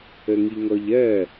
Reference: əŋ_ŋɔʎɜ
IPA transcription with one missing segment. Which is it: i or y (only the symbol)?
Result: i